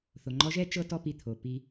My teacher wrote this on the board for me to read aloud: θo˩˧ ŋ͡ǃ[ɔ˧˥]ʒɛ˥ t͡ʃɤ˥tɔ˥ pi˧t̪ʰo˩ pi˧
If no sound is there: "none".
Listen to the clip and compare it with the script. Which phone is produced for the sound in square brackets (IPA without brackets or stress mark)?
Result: ɔ˧˥